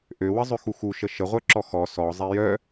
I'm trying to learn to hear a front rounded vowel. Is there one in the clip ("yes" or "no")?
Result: yes